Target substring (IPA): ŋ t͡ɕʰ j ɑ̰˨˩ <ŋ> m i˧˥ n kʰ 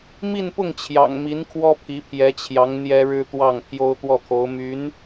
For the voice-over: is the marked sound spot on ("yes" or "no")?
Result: yes